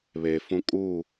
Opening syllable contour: low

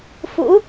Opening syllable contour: rising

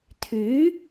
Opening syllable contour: rising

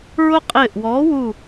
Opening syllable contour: high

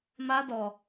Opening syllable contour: high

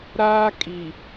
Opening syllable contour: high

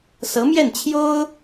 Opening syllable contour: rising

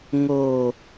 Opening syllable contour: low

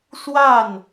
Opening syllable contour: falling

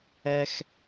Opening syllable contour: high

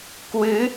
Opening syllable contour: rising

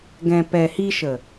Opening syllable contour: low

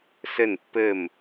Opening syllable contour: falling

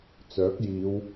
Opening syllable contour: rising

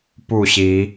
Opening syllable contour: falling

